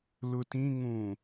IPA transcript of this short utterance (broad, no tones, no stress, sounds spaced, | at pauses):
l ʊ t ĩ ŋ ũ